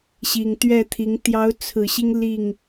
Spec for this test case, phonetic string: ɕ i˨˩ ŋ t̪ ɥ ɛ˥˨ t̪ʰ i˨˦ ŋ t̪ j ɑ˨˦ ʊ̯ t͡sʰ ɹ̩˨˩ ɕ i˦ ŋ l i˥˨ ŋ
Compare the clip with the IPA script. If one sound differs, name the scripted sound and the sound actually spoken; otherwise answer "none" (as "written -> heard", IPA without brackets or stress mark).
none